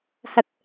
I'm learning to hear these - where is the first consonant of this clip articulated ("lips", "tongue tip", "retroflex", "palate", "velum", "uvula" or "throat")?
throat